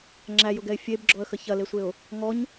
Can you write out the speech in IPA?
ŋ͡ǁæjʊɡɛɪ̯ fʲebɡ͡ǁɔə̯xə çɐlesʷeʊ̯ | ŋɔɲ

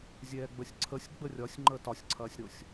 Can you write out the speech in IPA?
zʲɛːɡ͡bəsʲǀʰəsʲ ɡ͡bərʲɒsʲ ŋ͡ǃəːtɒsʲǀʰɐːsʲɾosʲ

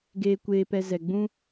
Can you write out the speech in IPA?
ɡeː˧kʷeː˧pɛ˧ zɛ˨ ɡ͡bũ˦

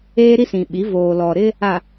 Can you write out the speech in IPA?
eː˦ɾi˦sĩ˨ɓi˨˦ voː˨lɔ˨ɾɪ˦ | a˨

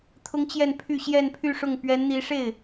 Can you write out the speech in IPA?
t̪ʰʊ˥ŋt͡ɕjɛ˥˧npʰy˥˧ ɕjɛ˥˧npʰy˥˧ʂʊ˥˩ŋ pɥɛ˧˥nn̪i˧˥ʂe˥˩ɪ̯

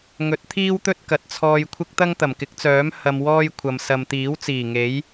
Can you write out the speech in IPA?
ŋɵ˨˥t̚t̪ʰiː˥wt̪ɵ˥t̚ kɐ˨t̚t͡sʰɔː˧jkʷʰɪ˥k̚ t̪ɐ˥ŋt̪ɐ˨˩mkɪ˨˥k̚t͡sœː˨˥m hɐ˧mwɔː˥jkʷʰɐ˨m sɐ˨mt̪iː˨˥wt͡siː˨˩ ŋe˨˥j

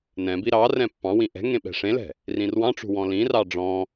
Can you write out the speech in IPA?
nɛ̃ biɾɑrɛ̃ pːɑ̃wĩ ʔɛ̤ŋẽ ɓɛ̤ʂẽlɛ̤ | rĩrwɑ̃ʈ͡ʂṳ wɔ̃lĩrɑ ɖ͡ʐɔ̃

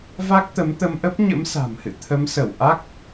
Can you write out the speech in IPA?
va˦˥k̚t̪ə˨˦mt̪ə˧mʔə˦˥p̚ ɲə̰˧˥msa̤˨˩mhɨ̰˧˨ t̪ʰə˨˦msə˧˩w ʔa˦˥k̚

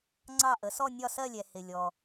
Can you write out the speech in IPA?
ŋ͡ǀɑ˥˧ʔə˩˥ sɔ˥˧nʲɒ˥˧sɜ˥˧lʲɛ˨ hɪ˨lʲɔ˨

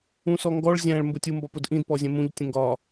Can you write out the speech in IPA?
ũsɔŋɡɔɭ zʲæ̃ɭ mbʊtʲu mbɒpʊdʔĩd pɔzʲɛ̃mũʎ tʲə̃ŋɡɒ

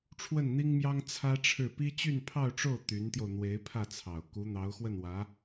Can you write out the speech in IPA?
ʈ͡ʂʰwə˥˩nn̪i˥ŋmjɑ˥ŋ t͡sʰä˥ʈ͡ʂʰɻ̩˥˩ pi˥t͡ɕy˥˧npʰɑ˥˧ʊ̯ʈ͡ʂo˥˩ʊ̯ t̪y˧˥nt̪jo˧ʊ̯ n̪we˧˥ɪ̯pʰä˥˩t͡sʰɑ˨˩ʊ̯ ku˧˥n̪ɑ˧˥ʊ̯xwə˥˩nwä˧˥

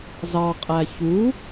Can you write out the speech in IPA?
zɑqʼæ çu

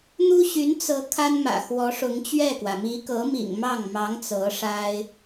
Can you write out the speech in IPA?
n̪u˥ɕy˧˥nt͡sɤ˧˥ kʰa˥nmä̰˨˩ xwɔ˧˥ʂʊ˧˥ŋt͡ɕɥɛ˥˩kwä˩ mi˧˥kɤ˧˥mḭ˨˩ŋ mɑ˥˩ŋmɑ˧˥ŋ t͡sɤ˧˥ʂa˥ɪ̯

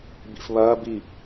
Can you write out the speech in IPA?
bḭfβɐː bi

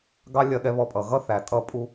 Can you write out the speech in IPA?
ɡɑ˥lʲɜ˧ɠɛ˧ βɔ˧pʼʌ˩ ɣʌ˥θæ˩ tʼʌ˥pʼu˥

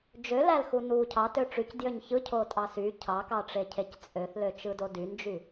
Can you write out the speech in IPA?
d͡ʒølælxu nu cʰɑtø ʈ͡ʂycdjøɲ çɯcʰotʼɑ sy cʰɑkɑʈ͡ʂecʰec t͡sʼøθløt͡ʃɯdo dynd͡ʒy

